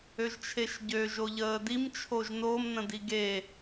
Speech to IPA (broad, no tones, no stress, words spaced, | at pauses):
øʒt͡ʃʰeʃɟø ʒoʎəːdim t͡ʃʰoʒnom nə̃diɡe